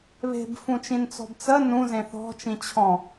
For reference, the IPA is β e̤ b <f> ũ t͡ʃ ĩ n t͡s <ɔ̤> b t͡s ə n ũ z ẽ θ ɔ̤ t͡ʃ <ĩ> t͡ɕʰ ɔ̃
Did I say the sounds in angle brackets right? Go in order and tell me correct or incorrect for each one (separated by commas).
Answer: correct, correct, correct